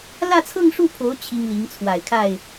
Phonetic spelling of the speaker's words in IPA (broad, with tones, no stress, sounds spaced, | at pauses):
l ä˥˧ t͡sʰ ɤ˥˧ ŋ ʂ u˥˩ pʰ o˧˥ ʊ̯ t͡ɕʰ i˥ ŋ l i˧˥ ŋ t͡sʰ w a˨˩ ɪ̯ kʰ a˥˩ ɪ̯